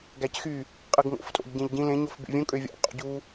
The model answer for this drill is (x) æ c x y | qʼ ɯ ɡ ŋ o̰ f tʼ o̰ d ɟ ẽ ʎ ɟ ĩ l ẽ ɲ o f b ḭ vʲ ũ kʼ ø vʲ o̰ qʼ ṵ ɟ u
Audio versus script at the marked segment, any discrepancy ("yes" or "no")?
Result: yes